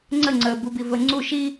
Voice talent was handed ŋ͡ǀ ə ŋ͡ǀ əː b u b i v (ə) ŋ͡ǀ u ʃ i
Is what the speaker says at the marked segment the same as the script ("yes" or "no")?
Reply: yes